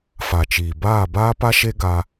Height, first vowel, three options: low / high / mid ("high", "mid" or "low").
low